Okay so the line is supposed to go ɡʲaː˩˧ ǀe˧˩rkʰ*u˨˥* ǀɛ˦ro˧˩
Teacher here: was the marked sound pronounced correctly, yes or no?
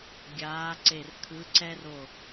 no